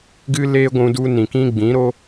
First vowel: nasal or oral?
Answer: oral